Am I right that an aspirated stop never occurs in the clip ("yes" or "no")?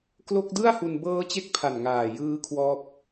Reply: no